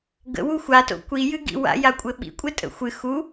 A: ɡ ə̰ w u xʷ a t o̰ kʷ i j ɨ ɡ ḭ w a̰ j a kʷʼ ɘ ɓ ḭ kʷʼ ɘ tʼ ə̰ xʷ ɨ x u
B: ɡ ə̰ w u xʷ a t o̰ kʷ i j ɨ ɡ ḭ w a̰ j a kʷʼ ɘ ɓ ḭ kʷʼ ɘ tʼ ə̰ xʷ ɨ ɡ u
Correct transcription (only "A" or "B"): A